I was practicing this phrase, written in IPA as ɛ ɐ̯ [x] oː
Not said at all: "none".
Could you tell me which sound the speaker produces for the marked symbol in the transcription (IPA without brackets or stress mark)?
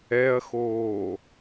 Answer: x